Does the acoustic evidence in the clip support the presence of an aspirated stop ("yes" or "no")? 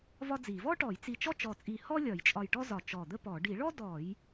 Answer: no